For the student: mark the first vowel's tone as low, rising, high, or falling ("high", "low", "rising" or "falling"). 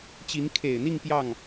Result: rising